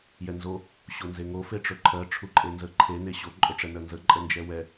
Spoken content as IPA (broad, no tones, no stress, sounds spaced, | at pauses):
j ɛ n z o | ɕ o n z e ŋ o f e ʈ͡ʂ ɵ ǃʰ ɜ ʈ͡ʂʰ u ǃʼ e n z ə ǃʰ e n e ɕ o ǃʼ ɵ ʈ͡ʂ ɛ n ɜ n z ə ǃʼ ə n d͡ʒ ɛ w ɛ